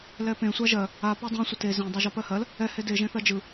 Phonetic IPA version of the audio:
l ɛ p ẽ sʷ a ʒ ɜ | a p a dˤ ẽ sʷ ə t e z ẽ dˤ a ʒ ɔ p ɜ h ɜ l | ɛ h e d e ʒ ẽ θ ɜ d͡ʒ ɯ

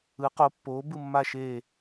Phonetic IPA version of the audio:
ɯ˨˥ q o˨˥ pː oː˨˥ b ɯ˥˧ mː a˥˧ ʃ eː˥˧

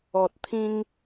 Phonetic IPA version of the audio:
ɔ˨ t̚ t̪ʰ ĩ˧ ŋ

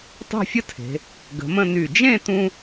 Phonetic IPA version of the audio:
tˤ e̤˥˧ fʲ ə˥ tʰ e̤˩˧ | ɡ ə̤˩˧ m ə̃˥˧ n y˧˩ d͡ʒ ẽ˥˧ t ũ˧

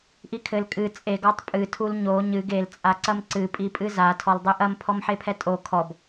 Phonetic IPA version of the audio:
ʔ i kʰ ɘ l kʼ ɨ t͡sʼ e ɡ ɔ tˤ pʼ ɨ tʰ u l ɲ o ɲ ɨ ɡ e l t͡sʼ a ǀ ɐ m ǀ ɨ pʼ i pʼ ɨ z a tʰ ɔ l dˤ e ʔ ɐ m pʰ ɔ m ħ e pʰ ɛ tʼ o kʰ ɔ b

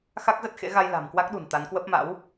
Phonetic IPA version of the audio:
x a˦˥ k̚ z ə˦˥ t̚ x ḛ˧˥ ɣ a˧ j l a̤˨˩ m k w a˦˥ k̚ ɗ ṳ˨˩ n t̪ a˨˦ n k w ə˦˥ p̚ m a̰˧˥ w

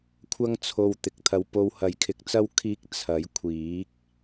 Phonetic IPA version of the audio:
kʷʰ ɐ˥ ŋ t͡sʰ o˧ w t̪ ɪ˨ k̚ t̪ʰ ɐ˧ w p o˧ w h ɐ˨˥ j kʰ ɪ˨˥ k̚ t͡s ɐ˥ w kʰ iː˥ k̚ t͡sʰ ɐ˨˥ j kʷʰ iː˨˥ k̚

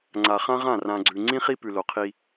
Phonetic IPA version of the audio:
ŋ͡ǀ a˨ χ ã˦ ʁ ã˦˨ r ã˨ ɡ͡ǀ ʉ˨ ŋ͡ǀ ĩ˦ χ i˦ p ʉ˨ l o˨ qʰ i˦

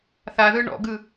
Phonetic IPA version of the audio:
θ a ð ɯ ɳ ɔ̰ ɡ ɯ

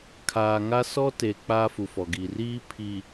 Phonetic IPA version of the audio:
kʰ aː˨ ŋ a˦ s ɔ˦ t e˨ k͡p aː˦ f u˨ f ɔ˨ ɡ i˨ r iː˦ pʰ i˨

